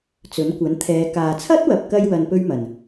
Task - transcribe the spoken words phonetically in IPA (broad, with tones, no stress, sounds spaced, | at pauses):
t͡s ɵ˨˥ n kʷ ɐ˨˥ n t̪ʰ ɛː˨˧ k aː˨ t͡sʰ ɐ˥ t̚ w ɐ˨ p̚ k ɐ˧ j w ɐ˧ n p ɵ˥ ɥ m ɐ˨˩ n